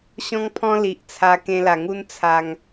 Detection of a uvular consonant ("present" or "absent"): absent